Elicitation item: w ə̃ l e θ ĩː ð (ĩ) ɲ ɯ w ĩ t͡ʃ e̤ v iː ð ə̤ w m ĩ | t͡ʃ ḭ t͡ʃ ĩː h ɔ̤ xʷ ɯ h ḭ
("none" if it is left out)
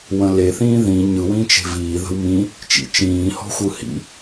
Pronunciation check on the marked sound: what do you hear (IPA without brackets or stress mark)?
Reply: ĩ